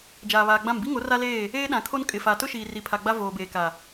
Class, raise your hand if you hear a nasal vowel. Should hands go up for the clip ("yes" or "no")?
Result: yes